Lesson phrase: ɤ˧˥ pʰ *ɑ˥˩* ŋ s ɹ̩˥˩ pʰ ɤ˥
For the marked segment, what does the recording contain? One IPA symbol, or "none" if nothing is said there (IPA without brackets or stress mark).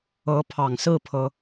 ɑ˨˩